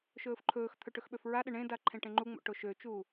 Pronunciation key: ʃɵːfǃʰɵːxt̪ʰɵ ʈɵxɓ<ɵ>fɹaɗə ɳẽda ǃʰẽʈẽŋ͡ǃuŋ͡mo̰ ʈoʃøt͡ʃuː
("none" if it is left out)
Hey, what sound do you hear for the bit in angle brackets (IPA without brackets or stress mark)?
ø